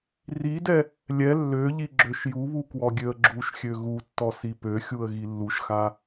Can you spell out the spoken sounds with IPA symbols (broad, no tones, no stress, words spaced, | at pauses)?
ridɛ | lʲɛ lːøʎi ɡ͡ǁøʃjuβu kwɔɡʲøə̯ɡ͡ǁuʃxʲø ɣutːɔ sipøxʲuə̯ ɣilːuʃxa